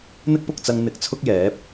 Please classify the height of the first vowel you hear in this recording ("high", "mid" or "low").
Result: high